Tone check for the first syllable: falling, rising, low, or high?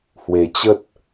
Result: low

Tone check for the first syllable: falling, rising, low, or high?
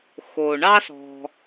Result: low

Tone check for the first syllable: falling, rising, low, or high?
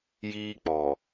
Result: high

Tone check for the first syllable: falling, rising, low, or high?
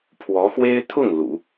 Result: rising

